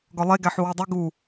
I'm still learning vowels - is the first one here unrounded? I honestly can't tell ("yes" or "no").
no